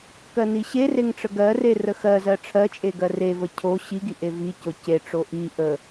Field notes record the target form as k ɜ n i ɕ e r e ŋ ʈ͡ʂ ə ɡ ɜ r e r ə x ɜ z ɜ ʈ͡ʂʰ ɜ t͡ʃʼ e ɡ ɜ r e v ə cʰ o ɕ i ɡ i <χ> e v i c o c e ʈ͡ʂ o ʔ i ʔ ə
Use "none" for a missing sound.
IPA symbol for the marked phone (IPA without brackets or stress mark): ʔ